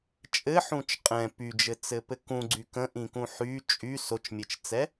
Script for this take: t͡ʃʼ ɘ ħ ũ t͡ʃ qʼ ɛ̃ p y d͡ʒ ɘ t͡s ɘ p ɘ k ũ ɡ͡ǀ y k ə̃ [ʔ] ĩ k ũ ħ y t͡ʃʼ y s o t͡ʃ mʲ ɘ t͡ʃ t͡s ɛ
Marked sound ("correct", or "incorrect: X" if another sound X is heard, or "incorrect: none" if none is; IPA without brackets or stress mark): correct